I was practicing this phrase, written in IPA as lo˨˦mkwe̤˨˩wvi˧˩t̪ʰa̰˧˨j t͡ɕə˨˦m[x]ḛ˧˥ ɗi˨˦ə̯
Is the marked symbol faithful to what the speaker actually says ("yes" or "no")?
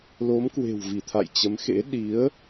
yes